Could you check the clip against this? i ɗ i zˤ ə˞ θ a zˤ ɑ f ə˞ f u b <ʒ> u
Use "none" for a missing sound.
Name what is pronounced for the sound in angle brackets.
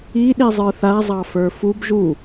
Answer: ʒ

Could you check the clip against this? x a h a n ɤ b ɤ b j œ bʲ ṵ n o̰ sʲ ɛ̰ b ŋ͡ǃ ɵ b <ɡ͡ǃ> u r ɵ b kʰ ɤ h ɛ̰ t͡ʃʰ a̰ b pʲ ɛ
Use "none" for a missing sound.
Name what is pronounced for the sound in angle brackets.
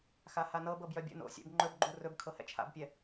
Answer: ɡ͡ǃ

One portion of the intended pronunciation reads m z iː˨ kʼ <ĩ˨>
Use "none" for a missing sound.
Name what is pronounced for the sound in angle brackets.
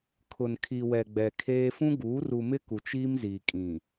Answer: ĩ˨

